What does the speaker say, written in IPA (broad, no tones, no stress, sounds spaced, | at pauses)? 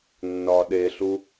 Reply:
nː ɒ ɗ e ɬ u